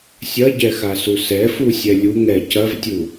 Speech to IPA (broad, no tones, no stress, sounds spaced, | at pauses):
sʲ ɐ ɟ ɛ x a s u s ɛ f u sʲ ɛ lʲ u ŋ ɛ c ɐ v tʲ u